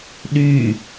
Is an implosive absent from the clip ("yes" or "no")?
no